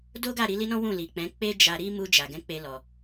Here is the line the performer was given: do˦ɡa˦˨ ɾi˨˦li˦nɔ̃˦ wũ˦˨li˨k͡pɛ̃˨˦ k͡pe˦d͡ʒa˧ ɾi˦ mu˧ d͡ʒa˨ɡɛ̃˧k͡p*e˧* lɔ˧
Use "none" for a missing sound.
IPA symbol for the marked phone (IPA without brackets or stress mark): e˧